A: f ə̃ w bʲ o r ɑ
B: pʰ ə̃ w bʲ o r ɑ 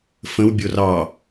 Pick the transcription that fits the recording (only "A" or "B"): A